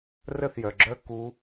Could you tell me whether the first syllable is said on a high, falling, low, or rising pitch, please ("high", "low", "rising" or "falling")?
falling